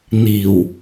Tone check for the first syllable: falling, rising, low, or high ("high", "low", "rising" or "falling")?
low